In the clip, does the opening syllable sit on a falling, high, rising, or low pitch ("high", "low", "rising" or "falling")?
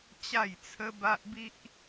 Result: falling